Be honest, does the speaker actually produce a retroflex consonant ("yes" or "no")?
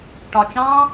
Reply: yes